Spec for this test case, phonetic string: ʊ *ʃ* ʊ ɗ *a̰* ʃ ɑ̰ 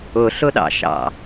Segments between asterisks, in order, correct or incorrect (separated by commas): incorrect, incorrect